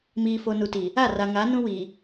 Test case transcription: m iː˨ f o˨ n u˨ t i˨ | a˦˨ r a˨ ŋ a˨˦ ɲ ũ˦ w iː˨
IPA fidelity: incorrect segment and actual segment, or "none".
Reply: ɲ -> n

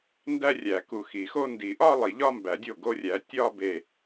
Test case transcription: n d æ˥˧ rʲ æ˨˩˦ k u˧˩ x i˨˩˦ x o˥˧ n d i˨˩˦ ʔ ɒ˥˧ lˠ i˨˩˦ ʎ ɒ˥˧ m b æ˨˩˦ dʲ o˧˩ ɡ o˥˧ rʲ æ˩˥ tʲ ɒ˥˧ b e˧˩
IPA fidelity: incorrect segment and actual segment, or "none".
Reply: none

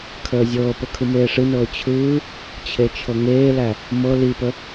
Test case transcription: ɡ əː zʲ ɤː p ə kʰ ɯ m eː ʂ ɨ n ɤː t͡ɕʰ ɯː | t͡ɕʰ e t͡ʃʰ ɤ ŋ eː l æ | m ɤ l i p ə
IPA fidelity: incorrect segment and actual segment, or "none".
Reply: ɡ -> kʰ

